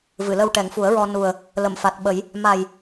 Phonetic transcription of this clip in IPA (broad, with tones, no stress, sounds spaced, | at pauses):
v ɨ˨˩˨ l ə˧ w ʈ ɛ˨˩˦ ŋ f u˨˩˦ ə̯ ɹ ɔ˧ n u˨˩ ə̯ | l ə˨˩˨ m f a˨˩ t̚ ɓ ə˨˩˦ j | m a˨˩ j